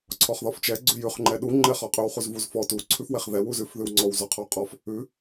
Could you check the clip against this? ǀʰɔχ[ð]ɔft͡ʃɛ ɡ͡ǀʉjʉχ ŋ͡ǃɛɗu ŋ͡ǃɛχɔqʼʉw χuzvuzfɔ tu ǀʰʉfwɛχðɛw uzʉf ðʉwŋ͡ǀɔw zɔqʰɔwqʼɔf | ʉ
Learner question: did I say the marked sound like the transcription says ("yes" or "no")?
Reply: yes